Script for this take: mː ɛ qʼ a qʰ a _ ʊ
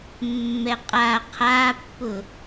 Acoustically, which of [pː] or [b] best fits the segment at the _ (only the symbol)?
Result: pː